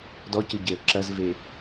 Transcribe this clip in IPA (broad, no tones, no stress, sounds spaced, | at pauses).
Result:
d ɔ c ɨ ɟ e ə̯ ǁ ɐ z v e